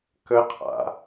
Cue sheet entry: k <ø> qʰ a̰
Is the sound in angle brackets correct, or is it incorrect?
incorrect: ə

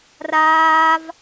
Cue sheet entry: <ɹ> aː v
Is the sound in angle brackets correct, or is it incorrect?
incorrect: r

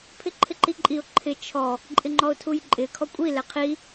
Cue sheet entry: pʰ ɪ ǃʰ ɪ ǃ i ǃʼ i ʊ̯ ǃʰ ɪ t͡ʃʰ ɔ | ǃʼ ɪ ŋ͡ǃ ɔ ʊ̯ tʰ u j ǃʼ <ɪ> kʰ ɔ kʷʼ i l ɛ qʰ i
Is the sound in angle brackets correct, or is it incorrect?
correct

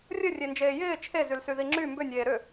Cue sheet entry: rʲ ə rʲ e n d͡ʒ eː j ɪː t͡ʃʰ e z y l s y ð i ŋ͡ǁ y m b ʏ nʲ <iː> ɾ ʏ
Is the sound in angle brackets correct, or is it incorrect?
incorrect: eː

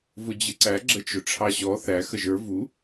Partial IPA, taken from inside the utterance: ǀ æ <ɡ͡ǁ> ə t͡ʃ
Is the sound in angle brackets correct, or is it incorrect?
correct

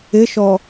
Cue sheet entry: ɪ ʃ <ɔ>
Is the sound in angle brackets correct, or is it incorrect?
correct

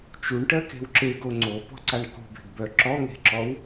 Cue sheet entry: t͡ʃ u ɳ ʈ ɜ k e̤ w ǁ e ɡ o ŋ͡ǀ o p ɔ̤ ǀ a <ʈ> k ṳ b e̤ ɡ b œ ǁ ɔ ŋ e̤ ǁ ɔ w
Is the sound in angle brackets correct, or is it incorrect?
incorrect: ɳ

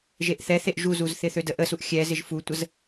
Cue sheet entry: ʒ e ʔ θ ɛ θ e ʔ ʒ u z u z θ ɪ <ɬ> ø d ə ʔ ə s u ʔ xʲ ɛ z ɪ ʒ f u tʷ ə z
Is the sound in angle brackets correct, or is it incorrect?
incorrect: θ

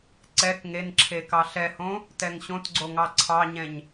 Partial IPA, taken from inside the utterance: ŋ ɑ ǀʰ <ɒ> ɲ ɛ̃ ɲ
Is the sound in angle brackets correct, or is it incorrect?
incorrect: ɑ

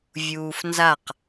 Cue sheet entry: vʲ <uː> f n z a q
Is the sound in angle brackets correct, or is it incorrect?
correct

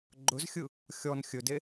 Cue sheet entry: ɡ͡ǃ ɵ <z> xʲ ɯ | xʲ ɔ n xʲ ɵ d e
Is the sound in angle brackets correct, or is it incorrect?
correct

